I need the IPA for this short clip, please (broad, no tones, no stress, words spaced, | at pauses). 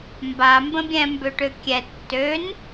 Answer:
mba mbə̃bʲɛ̃ mbøʈøkʲɛ tːøn